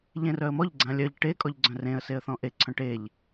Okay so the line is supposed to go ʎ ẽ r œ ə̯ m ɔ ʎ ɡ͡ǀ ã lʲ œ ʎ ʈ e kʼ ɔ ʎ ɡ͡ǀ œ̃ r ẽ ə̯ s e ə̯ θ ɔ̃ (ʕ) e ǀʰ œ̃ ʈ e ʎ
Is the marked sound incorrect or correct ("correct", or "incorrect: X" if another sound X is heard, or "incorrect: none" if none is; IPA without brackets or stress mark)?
incorrect: ʔ